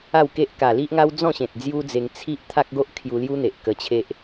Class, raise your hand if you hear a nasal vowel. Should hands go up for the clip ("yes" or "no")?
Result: yes